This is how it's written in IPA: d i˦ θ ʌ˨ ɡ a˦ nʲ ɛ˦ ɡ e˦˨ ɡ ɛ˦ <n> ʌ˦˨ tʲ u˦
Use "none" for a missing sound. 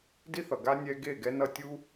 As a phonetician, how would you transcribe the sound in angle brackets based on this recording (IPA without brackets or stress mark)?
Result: n